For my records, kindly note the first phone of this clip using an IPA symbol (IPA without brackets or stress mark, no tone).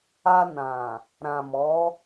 a